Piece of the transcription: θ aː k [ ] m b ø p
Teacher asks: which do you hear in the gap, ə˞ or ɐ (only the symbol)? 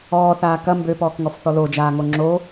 ɐ